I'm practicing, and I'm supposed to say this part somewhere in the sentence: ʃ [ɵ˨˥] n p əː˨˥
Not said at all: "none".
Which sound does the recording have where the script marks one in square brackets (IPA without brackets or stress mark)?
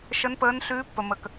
ə˨˥